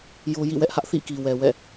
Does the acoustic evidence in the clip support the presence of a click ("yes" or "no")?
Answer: no